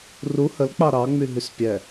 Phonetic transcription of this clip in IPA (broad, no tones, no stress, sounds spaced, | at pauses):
r u h ə l k͡p ɑ ɾ ɑ ŋ͡m y ɦ y s pʲ ɛ